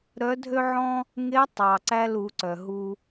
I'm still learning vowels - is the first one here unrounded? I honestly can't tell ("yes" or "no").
no